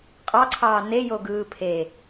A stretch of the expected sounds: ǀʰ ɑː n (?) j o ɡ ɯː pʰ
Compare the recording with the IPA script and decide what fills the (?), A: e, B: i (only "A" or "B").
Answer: A